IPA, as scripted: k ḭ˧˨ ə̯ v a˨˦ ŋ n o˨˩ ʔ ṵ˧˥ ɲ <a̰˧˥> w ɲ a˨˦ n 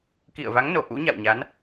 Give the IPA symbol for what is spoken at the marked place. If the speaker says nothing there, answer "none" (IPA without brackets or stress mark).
a̰˧˨